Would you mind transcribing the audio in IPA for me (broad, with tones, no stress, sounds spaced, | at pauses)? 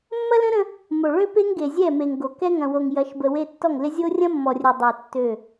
mː ɐ˦ l ə̃˦ ɾ ə̃˦ | m o˨ ɭ ø˦ p e˦ ŋ ɡ e˨ zʲ ɛ˦˨ m e˨ ŋ ɡ o˨ k ɛ˦ ŋ ɐ̃˨ w o˨ ŋ j ɐ˨˦ ʃ b ə˨ w e˦ tː ɔ˦˨ ŋ l ɪ˦ zʲ o˦ rʲ ɐ̃˦ mː ɔ˨ rʲ ɛ˨ dˤ ø˨ tː ø˦˨